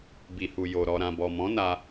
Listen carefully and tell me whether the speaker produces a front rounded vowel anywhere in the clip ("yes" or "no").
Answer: no